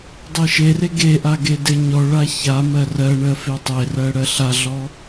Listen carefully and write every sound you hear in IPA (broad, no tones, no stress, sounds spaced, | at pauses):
dˤ e ʃ e r e ɡ e ʔ a ɡ e d e ɲ ɔ ɭ a ç a m ɜ r ɜ ɳ ɜ f e tˤ e r ɜ ɽ ɜ ɬ a ɮ ɔ